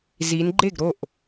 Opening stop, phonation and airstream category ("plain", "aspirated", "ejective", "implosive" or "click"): click